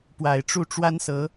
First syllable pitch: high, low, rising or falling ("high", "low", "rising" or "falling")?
low